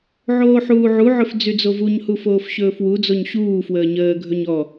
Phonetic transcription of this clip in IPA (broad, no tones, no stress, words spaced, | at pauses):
ʕoːħuːʕuʕɵf d͡zyd͡zovuɲhu foːfɕɵːfwud͡zoɲ ɕuːfwəː ɲəːɡʱɵɲ ɔ